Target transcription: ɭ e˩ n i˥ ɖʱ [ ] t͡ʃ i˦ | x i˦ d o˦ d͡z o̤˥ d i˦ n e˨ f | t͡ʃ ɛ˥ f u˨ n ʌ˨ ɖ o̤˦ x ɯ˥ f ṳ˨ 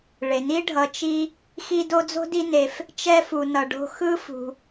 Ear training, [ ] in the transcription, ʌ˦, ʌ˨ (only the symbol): ʌ˨